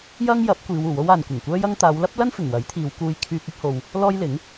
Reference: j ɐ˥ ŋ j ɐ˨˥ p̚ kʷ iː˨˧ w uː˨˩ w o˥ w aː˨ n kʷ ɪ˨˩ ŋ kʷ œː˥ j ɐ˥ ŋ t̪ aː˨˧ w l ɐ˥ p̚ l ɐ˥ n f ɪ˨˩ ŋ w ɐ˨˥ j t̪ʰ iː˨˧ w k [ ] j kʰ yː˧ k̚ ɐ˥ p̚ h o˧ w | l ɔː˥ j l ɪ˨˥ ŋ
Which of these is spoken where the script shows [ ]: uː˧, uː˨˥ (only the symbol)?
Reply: uː˧